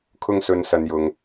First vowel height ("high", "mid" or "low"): high